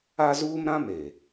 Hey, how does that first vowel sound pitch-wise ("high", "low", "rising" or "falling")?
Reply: high